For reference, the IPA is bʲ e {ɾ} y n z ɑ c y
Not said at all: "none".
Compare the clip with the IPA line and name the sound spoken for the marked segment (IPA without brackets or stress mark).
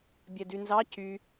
d